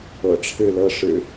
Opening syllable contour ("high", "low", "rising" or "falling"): low